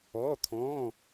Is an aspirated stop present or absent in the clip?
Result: present